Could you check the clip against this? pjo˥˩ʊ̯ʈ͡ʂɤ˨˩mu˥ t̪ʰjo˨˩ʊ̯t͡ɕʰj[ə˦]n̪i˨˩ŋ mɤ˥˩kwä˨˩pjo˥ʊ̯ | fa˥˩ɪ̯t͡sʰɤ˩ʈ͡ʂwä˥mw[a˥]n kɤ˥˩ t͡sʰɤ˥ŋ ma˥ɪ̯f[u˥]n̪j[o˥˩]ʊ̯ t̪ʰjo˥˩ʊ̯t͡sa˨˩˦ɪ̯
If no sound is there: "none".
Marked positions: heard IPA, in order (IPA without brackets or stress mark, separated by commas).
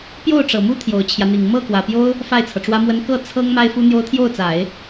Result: ä˦, ə˥, u˥, o˥